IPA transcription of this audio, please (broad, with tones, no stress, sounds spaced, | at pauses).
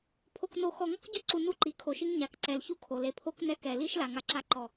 pʰ o˨ k n o˨ x ɔ˨ ŋ ɔ˦ k ɟ ʊ˦ ǀ u˨ n u˦ ǃ i˨ kʰ o˨ ʃ i˦ ŋ ɲ a˨ k ǀ ɛ˨ l ç u˦ kʰ o˨ l e˨ pʰ o˦ k n ɛ˦ k ɛ˨ l i˦ ʃ l a˨ ŋ a˦ ǁ a˦ ǃ ɔ˨